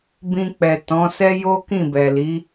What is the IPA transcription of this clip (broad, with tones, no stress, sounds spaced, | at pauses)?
b ĩ˧ k͡p ɛ˨ t ɔ̃˨˦ s ɛ˦ j o˦ k ĩ˦˨ b ɛ˨ l i˨˦